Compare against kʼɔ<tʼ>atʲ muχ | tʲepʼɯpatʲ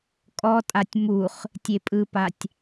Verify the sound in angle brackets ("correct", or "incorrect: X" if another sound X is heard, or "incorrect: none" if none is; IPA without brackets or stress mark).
correct